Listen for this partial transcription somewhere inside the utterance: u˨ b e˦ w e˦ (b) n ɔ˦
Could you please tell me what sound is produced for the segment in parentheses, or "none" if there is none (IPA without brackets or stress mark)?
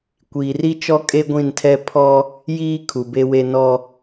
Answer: none